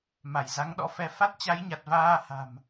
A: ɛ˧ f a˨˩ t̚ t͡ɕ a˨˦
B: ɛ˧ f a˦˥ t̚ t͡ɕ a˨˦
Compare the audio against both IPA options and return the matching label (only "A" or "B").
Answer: B